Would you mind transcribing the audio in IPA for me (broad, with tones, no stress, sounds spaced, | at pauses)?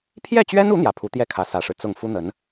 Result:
pʰ j ɛ˥˩ t͡ɕ ɥ ɛ˥ n u˧˥ n̪ j ä˧˥ pʰ u˧˥ t̪ j ɛ˥˩ kʰ ä˧˥ s ä˨˩ ʂ ɻ̩˦ t͡s ʊ˥˩ ŋ f u˥ n̪ ə˧˥ n